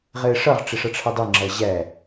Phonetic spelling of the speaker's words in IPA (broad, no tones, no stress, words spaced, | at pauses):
ʁəːʂɒʁ ʈ͡ʂəʂɒʈ͡ʂʰʌdˤʌ ŋ͡ǁʌʑæ